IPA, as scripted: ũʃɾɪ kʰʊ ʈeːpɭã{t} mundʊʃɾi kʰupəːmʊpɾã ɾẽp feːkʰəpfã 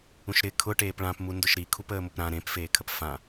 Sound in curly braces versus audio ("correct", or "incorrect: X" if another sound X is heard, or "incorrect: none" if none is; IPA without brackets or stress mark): incorrect: p